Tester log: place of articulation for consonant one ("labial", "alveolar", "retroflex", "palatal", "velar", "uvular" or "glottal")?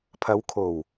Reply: labial